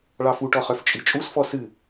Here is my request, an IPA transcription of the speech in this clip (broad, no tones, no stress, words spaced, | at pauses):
ɭɑfuʈɔ χœft͡ʃʼit͡ʃʼusfɔ sɨ